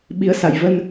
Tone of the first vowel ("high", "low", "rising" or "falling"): rising